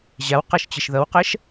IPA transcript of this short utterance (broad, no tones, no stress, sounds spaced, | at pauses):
ʑ a w q ʌ ʃ t͡ɕ ɘ ʃ ð ʌ w q ɜ ʃ